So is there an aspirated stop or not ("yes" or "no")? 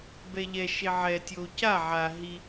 no